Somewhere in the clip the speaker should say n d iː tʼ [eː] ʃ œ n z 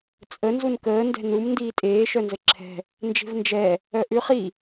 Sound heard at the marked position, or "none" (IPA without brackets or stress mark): eː